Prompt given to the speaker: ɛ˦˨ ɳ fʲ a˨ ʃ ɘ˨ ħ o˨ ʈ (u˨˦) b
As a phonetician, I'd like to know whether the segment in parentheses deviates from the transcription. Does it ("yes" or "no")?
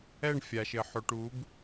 no